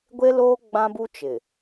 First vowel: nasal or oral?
oral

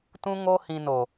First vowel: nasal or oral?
nasal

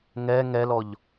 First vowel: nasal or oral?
oral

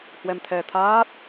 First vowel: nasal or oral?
oral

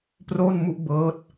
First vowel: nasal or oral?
oral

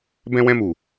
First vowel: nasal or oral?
nasal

